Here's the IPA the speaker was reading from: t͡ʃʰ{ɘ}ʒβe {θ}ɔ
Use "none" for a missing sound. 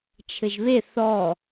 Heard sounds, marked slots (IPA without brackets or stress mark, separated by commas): ɘ, θ